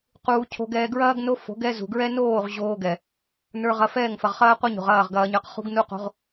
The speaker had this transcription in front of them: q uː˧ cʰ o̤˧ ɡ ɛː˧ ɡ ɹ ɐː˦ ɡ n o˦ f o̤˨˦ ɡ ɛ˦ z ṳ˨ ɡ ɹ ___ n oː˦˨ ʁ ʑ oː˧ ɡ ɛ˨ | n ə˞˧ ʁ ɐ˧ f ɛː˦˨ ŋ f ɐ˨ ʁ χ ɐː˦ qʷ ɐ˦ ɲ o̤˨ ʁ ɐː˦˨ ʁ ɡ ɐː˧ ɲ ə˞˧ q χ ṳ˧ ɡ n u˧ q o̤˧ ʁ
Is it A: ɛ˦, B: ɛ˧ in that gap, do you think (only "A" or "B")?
A